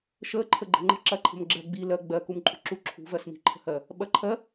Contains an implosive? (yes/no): yes